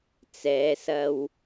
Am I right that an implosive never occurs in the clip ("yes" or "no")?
yes